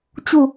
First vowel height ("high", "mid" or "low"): high